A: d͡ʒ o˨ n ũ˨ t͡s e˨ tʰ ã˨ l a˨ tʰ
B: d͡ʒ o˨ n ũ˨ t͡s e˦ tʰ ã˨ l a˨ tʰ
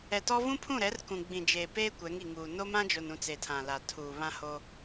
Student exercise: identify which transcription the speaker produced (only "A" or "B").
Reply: A